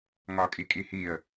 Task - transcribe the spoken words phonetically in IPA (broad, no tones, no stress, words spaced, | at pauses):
ŋɒːkʼikʼihiːə̯